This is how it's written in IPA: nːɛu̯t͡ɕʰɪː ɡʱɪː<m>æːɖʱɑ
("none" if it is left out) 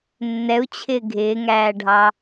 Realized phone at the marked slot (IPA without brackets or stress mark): ŋ